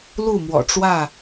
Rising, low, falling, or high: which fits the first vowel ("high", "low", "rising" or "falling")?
falling